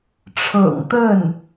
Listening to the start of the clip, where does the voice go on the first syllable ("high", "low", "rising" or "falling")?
low